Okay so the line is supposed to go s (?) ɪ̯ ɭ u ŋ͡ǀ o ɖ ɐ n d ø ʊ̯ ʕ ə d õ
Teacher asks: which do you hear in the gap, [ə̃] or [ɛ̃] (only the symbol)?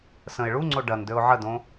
ə̃